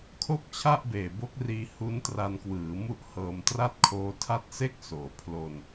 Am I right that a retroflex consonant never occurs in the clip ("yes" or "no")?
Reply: yes